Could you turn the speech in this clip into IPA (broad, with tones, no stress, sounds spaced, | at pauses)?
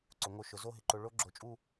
ǀ ʊ˩˧ ŋ o˧ ʃ ʊ˩˧ z o˥˧ ɦ ɪ˧ ǃ o˧ ɭ o˥ ɡ͡ǁ o˧˩ t͡ʃʼ u˥˧